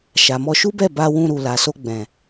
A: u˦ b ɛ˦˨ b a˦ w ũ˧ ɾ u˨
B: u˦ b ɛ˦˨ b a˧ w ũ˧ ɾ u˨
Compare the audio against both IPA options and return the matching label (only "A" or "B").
B